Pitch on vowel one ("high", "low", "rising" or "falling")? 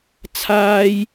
high